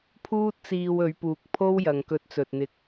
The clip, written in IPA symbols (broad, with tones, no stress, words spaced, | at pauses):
pʰuː˥t̚t͡siː˧w ɵ˨˧ɥpuː˨k̚pʰo˥w jɐ˨ŋkɵ˧t̚t͡sɵ˨t̚n̪ɪ˧k̚